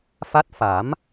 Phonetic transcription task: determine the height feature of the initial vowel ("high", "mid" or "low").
low